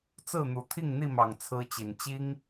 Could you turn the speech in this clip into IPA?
t͡s ɹ̩˥˨ n̪ u˨˩ t̪ʰ i˥˨ ŋ n̪ i˥˨ m ɑ˨˩ ŋ t͡sʰ ɹ̩˦ t͡ɕ i˨˩ n t͡ɕ i˦ ŋ

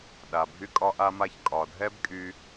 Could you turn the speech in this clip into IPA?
ɗ a˩ bʱ y˧ kʼ ɒ˧ ʔ a˧ m a˧ ç kʼ ɒ˩ dʱ ɛ˥ b kʼ y˧

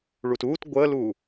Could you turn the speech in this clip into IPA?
ɭ u t uː t ɡʷ əː l uː

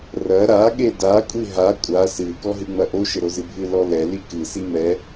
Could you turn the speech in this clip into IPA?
r ɐ ɾ a ɠ e d a kʷʼ i ɦ a kʷʼ a s ɨ k ɔ ɦ ɨ ŋ͡m ɐ ʔ o ʃ ɘ ɾ o z ɨ bʱ ɨ l ɔ l ɛ l i k ɨ s i m ɛ

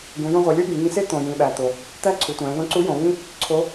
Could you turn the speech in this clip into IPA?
ɡ ũ˩˧ j ũ˧ ʁʷ e˩˧ lʲ o˥ ɡ ĩ˩˧ ŋ ĩ˧ s e˥ t̪ õ˩ j ĩ˩ ɓ æ˩ t̪ o˩ | t̪ æ˥ ǀʰ u˩˧ tʷ æ̃˩˧ ð õ˧˥ ǀ u˧˥ j õ˩˧ β ĩ˥ | ǀʰ o˧˥

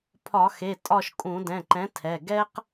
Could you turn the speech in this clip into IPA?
pʰ ɒ˧˩˧ x e˩˧˩ tʼ ɒ˦˨ ʃ kʼ ũ˧˩˧ d ɛ̃˩˧˩ ǃ ɛ̃˨˥ tʰ ɛ˩˧˩ ɡ ɛ˥ q

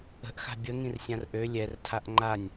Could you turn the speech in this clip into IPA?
ə̤ ʔ x a̤ bʲ ə ŋ ĩ r sʲ ã r ʔ ø lʲ ɛ r tʰ a ʔ ŋ͡ǃ a nʲ

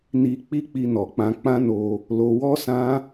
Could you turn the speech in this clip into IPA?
n i˧ k͡p i˦ k͡p i˧ n ɔ˨ k͡p ã˧ k͡p ã˦ n o˧ | l o˧ w ɔ˦ s ã˦

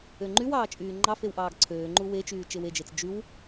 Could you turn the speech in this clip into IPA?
ø ŋ͡ǃ y w ɑː t͡ʃʼ yː ŋ͡ǃ ɑ f e w ʔ ɑː ɡ ǀʰ øː ŋ͡ǃ u w e t͡ʃ yː t͡ʃ e w e d͡ʒ e t͡s d͡ʒ y w

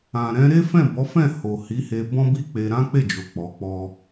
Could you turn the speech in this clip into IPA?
ã˨ ɾ ɛ̃˧ ɾ e˦ f ɛ̃˦˨ b ɔ˨˦ f ɛ̃˦˨ h o˨ h i˨˦ h e˧ b ɔ̃˦ b i˦ k͡p e˧ ɾ ã˦ k͡p e˦˨ d͡ʒ o˨ k͡p ɔ˨˦ k͡p ɔ˦

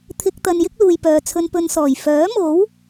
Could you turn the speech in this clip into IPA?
t̪ʰ ɪ˧ k̚ t̪ ɐ˧ n j ɪ˥ k̚ l uː˨ j p œː˨ t͡sʰ ɵ˧ n p ɵ˧ n s ɔː˨˩ j f œː˨˥ m o˨˥ w

